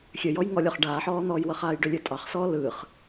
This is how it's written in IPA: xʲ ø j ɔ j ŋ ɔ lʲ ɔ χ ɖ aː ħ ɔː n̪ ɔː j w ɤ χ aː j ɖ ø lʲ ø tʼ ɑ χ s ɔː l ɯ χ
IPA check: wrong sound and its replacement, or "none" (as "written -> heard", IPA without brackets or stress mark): none